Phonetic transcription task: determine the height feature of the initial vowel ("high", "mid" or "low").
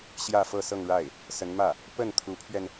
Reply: low